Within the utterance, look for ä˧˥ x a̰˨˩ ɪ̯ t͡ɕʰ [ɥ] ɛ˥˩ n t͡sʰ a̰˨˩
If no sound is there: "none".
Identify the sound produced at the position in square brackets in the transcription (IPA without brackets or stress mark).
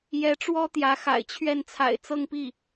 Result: ɥ